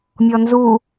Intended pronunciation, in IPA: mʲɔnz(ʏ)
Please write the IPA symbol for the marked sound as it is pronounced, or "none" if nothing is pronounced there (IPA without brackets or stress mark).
u